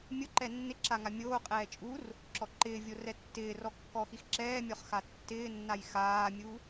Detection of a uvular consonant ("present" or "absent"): present